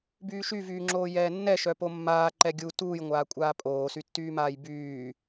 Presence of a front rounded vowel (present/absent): present